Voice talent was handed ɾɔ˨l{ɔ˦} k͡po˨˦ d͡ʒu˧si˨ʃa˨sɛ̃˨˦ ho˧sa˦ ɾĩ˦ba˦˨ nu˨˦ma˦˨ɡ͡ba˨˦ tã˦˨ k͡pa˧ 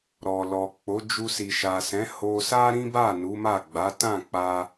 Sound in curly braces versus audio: incorrect: ɔ˨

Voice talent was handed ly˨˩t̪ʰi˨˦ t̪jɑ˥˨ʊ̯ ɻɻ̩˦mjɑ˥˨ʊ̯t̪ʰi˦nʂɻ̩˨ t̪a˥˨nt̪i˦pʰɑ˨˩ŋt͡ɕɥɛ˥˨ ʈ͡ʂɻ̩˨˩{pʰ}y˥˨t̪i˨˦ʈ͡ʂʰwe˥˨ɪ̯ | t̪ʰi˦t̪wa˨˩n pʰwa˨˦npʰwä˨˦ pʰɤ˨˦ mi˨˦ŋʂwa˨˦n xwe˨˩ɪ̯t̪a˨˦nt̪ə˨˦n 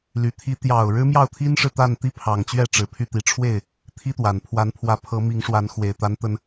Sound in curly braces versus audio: correct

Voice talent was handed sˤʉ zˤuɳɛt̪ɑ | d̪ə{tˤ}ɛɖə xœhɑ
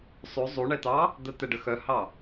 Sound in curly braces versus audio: incorrect: t̪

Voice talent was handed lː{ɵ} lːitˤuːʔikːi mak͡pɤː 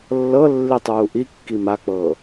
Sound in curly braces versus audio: incorrect: ɤ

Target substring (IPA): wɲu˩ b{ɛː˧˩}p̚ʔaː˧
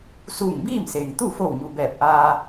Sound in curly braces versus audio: correct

